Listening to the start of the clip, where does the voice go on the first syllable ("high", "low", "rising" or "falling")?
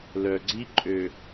low